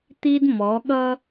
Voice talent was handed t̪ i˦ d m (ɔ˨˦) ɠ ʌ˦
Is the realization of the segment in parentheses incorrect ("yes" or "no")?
no